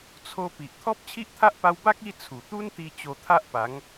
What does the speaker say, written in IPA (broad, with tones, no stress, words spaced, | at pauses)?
t͡sʰo˧ pi˨ʔ t̪ʰɔ˦p̚t͡ɕʰi˦ʔt̪ʰa˦ʔ pa˧wba˦k̚ i˦ t͡sʰu˨˩t̪u˦nt̪i˧ t͡ɕo˧t̪ʰa˦ʔpa˨˦ŋ